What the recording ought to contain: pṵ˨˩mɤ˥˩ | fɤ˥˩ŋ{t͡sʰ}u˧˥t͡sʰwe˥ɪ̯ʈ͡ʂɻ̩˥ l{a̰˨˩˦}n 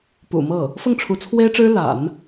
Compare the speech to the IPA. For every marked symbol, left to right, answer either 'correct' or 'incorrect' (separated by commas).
incorrect, correct